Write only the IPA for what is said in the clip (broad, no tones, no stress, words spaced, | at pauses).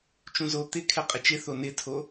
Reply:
t͡ʃũzo t̪ɪ kʰɛqʼɪt͡ʃɪθo nɪtʰo